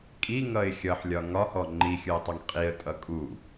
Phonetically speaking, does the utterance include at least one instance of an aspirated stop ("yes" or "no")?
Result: no